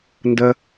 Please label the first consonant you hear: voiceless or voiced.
voiced